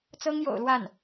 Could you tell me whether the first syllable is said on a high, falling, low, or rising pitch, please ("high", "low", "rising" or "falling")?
high